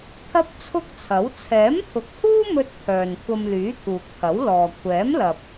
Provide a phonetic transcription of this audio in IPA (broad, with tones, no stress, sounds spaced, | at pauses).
t̪ʰ ɐ˥ p̚ t͡sʰ ʊ˥ k̚ t͡sʰ ɐ˨˥ w t͡sʰ ɛː˨˥ m t̪ʰ ʊ˨˥ k̚ h uː˥ m ɵ˧ t̚ t̪ʰ œː˨ n kʷʰ ɐ˧ m l yː˨˥ t̪ʰ uː˨ k̚ pʰ ɐ˨˥ w l ɔː˨ kʷʰ ɛː˨˥ m l ɐ˨ p̚